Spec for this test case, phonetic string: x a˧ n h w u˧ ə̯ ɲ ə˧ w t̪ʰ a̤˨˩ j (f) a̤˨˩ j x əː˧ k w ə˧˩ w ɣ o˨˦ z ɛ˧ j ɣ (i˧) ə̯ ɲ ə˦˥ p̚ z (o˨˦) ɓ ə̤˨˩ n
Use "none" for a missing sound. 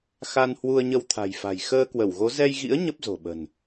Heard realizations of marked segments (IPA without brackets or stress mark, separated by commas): f, ḭ˧˥, o̤˨˩